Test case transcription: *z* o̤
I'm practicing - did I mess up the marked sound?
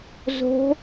no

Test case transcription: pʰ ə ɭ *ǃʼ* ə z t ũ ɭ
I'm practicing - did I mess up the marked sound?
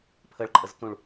no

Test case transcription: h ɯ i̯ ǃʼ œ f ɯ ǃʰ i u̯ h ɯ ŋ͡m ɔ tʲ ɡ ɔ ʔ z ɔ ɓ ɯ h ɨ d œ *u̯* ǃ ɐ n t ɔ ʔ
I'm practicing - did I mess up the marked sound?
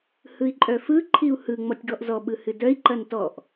yes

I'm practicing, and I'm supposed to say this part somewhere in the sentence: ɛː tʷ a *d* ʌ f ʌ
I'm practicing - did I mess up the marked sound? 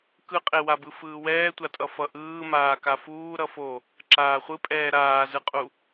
yes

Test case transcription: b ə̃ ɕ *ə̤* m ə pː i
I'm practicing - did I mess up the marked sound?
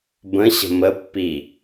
no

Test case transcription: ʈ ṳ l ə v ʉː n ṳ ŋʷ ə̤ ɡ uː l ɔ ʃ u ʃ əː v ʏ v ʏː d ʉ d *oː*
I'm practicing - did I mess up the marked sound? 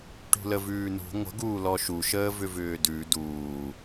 yes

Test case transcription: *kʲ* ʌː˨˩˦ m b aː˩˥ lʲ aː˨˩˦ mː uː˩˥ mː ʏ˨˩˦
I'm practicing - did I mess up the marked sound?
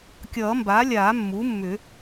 no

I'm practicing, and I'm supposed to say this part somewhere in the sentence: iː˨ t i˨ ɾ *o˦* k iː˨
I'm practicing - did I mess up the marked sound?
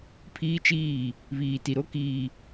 no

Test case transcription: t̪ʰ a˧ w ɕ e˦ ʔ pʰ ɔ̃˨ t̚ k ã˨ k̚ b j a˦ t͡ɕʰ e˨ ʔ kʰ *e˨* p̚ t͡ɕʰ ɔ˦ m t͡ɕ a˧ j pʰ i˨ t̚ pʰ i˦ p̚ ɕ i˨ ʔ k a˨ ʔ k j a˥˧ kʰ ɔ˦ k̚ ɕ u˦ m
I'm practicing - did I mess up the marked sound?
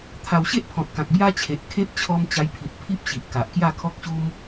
yes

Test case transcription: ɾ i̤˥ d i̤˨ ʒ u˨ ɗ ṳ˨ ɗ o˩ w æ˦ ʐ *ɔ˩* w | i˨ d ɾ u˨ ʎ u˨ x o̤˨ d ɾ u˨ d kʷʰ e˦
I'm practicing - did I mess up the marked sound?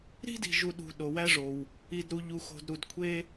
yes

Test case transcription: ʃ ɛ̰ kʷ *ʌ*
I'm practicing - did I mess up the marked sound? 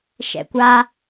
yes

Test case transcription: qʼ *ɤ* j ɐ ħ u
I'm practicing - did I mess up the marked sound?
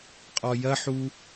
yes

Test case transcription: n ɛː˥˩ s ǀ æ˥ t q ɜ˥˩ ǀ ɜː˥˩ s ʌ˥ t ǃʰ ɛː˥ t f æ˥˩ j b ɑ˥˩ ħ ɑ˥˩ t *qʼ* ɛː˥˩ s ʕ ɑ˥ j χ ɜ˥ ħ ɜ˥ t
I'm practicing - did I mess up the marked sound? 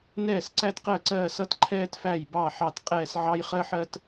no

